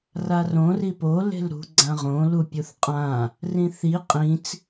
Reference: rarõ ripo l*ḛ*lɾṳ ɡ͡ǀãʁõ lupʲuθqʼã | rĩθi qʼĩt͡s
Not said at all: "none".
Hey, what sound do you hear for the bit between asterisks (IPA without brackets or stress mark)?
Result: e̤